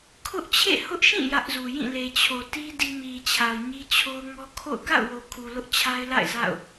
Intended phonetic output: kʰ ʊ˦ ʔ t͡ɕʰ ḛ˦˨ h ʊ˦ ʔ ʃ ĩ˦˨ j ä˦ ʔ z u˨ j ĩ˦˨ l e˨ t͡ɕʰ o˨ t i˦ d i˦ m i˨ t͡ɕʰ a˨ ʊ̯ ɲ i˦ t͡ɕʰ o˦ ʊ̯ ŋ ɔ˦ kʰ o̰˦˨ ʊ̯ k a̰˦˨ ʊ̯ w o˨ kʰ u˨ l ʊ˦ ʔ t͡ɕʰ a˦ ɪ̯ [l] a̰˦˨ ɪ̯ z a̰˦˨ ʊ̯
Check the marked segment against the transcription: correct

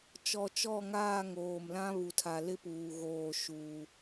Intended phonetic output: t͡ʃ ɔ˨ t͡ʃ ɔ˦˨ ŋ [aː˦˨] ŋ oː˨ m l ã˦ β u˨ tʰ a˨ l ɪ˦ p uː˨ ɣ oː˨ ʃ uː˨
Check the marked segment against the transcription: correct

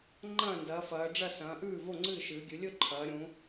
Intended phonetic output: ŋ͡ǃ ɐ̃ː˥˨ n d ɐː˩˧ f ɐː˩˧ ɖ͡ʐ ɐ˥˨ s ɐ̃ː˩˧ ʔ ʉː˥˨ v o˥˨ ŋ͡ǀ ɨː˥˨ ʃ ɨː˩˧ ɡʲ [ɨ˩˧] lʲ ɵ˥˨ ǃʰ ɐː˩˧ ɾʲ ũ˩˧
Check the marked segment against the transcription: correct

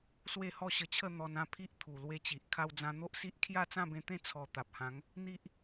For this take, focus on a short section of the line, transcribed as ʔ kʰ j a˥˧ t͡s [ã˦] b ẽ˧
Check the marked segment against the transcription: incorrect: ã˥˧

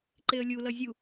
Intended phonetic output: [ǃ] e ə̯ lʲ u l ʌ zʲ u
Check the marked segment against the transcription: correct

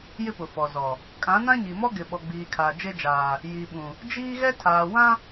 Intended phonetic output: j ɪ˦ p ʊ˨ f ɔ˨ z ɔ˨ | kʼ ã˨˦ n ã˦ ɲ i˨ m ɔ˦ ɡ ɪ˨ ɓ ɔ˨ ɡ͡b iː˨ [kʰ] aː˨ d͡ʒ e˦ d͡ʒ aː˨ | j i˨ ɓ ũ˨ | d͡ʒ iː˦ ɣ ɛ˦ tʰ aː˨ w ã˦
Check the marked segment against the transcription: correct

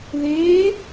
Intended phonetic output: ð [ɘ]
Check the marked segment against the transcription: incorrect: e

